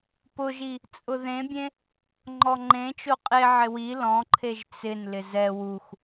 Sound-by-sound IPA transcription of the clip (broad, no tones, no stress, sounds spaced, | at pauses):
p ʊ ʒ i | t͡sʼ ʊ ð ẽ bʲ ẽ | ŋ͡ǃ ɔ ŋ͡ǃ ẽ t͡ʃ o qʼ e ʕ ɪ w i l ɔ̃ ǃʰ e ʒ t͡s ɪ n l ɪ z ɛ w u x